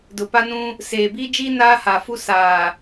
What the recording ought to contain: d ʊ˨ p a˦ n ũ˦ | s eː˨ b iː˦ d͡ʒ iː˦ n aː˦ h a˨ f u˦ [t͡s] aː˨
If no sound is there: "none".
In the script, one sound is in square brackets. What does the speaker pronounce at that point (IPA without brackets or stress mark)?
s